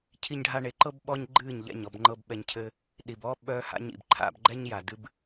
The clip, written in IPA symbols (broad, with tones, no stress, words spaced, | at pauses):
cʰi˧ɲɖʱa˧ɳe˨˦ǃɤ˦b ɓɔ˦ɲɡ͡ǃɨː˦˨ɲʎɛ̰˦˨ɲ ɔ˦˨bŋ͡ǃɤ˧b ɓɛ˧ɲcʰɘ˦ | ɗi˨bɔː˦ ɓœː˧ ha̰˦ɲ ḭ˨bǃʰa̰˧bɡ͡ǃɛ˦ɲ ja˨ dɨ˧b